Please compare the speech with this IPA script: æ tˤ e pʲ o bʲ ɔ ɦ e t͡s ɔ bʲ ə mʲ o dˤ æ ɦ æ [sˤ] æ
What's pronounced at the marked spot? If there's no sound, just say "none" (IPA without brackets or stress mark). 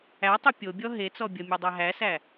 s